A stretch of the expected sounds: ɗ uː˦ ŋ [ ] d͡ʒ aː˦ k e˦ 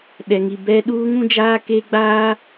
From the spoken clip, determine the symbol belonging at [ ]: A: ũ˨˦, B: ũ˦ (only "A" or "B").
B